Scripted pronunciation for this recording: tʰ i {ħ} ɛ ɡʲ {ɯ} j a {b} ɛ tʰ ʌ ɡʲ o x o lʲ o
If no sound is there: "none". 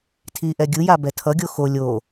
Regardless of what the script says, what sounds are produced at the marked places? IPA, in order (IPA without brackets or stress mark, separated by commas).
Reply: ʔ, ɯ, b